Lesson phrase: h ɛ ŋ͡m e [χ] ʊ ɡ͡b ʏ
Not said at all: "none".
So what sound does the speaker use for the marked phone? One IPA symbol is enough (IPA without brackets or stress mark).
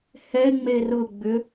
r